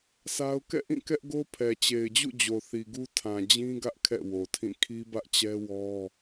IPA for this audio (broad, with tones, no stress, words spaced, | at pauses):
sʰa˦ʊ̯ kɛ̰˦˨ʔĩ˦˨ kɛ˦ʔɡo˦ pʰɛ˨t͡ɕe˨ɪ̯d͡ʑṵ˦˨ d͡ʑo˨θi˨ɡu˦ tʰã˨d͡ʑĩ˦ ɡä˦ʔ kʰɛ̰˦˨wo˨tʰĩ˦˨ kʰi˦bä˦ʔt͡ɕɛ˦wɔ˦